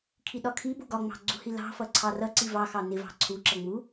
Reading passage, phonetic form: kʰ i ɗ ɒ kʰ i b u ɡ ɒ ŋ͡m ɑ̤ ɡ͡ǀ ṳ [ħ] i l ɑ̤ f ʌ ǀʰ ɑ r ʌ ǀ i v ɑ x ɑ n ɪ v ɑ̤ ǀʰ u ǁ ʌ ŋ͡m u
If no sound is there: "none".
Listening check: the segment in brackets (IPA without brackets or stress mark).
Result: h